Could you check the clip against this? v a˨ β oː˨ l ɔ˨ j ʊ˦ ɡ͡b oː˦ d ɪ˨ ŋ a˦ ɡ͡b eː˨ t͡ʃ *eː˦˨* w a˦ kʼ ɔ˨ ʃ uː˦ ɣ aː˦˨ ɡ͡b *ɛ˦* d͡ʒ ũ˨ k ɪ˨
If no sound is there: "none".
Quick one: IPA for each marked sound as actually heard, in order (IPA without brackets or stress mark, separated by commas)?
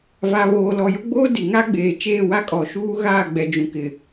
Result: eː˦˨, ɛ˨